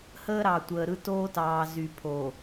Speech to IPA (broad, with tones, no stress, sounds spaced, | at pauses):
h əː˦ ɾ ɑ˨ tʷ əː˨ ɾ ɯ˦ t oː˦ t ɑː˨ z y˨ pʰ o˨